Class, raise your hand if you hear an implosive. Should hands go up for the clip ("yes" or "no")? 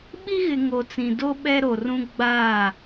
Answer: yes